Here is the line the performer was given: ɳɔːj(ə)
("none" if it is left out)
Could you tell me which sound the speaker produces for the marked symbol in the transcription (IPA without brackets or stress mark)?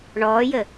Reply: ə